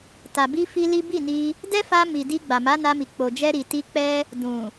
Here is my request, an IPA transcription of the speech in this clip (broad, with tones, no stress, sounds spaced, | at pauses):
t a˨ b i˧ f i˦ l i˦ b i˦˨ n i˧ | d ɛ˦ f a˧ m i˨ d i˧ ɡ͡b a˨ m a˨˦ n a˧ m i˨ k͡p o˨ d͡ʒ ɛ˧ ɾ i˨ t i˧ k͡p ɛ˦ | d ũ˨